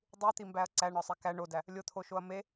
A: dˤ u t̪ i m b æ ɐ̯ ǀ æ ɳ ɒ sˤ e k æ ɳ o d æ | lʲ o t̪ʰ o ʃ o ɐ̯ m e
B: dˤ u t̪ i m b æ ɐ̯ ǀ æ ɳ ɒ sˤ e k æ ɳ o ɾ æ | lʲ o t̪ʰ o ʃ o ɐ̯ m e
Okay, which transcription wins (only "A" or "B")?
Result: A